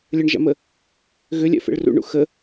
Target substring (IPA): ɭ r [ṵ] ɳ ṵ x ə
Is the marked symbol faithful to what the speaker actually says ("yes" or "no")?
yes